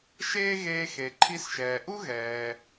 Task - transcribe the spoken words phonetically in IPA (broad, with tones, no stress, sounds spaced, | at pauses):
ʃ eː˥ ɣ eː˧ x e˩ ǃʰ i˧ s ʃ ɛː˩ ʔ u˥ ɣ ɛː˩